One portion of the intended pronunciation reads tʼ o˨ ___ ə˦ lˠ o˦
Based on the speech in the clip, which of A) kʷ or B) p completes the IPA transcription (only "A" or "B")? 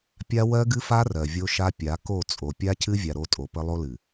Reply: B